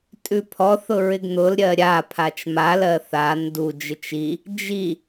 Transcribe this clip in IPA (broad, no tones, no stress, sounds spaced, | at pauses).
tʼ ʉ pʰ ɔ θ ʊ ɹ ɪ ɡ n̪ ʊ l ɾʲ ɜ ɾʲ a pʰ a t͡ʃ m a l ɜ θ a n d u d͡ʒ ɪ t͡ʃ i | d͡ʒ i